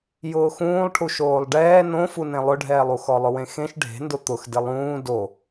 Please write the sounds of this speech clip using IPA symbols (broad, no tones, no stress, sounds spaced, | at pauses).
j ʊː x ũː lˠ ʈʰ u ʃ oː lˠ ɖ ɛː n õ f u n ẽ lˠ ʊ ɖʱ ɛː lˠ u x ɔ lˠ ʊ w ẽ x ẽ ʃ ɖʱ e̤ n d ʊ t̪ ʊ x d ɪ lˠ ũː d o